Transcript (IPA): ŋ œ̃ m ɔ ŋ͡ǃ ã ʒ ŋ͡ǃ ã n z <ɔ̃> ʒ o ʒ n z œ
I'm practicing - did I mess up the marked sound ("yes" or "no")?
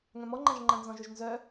no